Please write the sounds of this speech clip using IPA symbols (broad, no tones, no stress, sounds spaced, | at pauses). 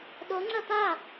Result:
ɗ o ŋ͡ǀ ɐ t̪ a